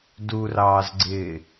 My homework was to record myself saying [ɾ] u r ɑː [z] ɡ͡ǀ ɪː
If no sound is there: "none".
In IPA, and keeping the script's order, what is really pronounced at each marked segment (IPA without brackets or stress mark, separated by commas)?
d, z